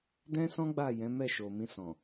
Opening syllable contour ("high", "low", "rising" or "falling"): high